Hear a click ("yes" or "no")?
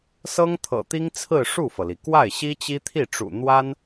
no